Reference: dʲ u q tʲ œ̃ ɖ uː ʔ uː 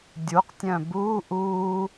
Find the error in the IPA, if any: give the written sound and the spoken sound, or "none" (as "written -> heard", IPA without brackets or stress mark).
ɖ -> b